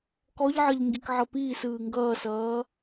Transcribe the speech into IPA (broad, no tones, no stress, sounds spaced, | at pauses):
k ɔ ʎ ʕ ʌ ʎ ŋ ɡ i k ʕ ʌ p iː s ɯː ŋ ɡ ʌː s ʌː